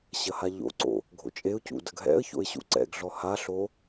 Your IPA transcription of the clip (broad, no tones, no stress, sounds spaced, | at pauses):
ɕ ɐ h a ʎ o̰ ǀ o̰ | ɡʱ o̰ t͡ʃʼ e ʊ̯ c ṵ d ɐ ɡ ɦ ɛ̰ ə̯ ç o̰ ɪ̯ ɕ ṵ ǀ ɛ̰ ɡ ɮ ɔ h a ɬ o